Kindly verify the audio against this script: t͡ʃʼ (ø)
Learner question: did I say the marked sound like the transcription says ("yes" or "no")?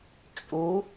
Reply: no